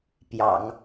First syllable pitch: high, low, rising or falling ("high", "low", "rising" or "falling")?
low